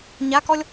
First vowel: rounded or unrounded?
unrounded